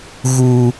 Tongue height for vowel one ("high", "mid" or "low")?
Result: high